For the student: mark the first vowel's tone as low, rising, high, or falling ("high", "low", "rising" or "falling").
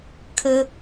high